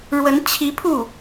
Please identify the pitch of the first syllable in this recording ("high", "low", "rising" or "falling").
rising